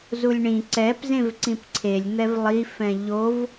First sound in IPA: z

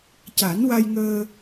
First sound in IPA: c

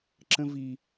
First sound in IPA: ǁ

